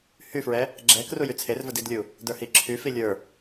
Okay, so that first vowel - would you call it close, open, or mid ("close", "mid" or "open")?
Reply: close